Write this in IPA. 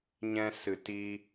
ɲ ɛ̃˦ s ɨ˧ t i˦

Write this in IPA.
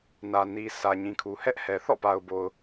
n ä˨ n i˨ s ä˨ ɲ ĩ˨ kʰ u˨ h ɛ˦ ʔ h ɛ˨ θ ɔ̰˦˨ p a˨ ʊ̯ b o˨ ʊ̯

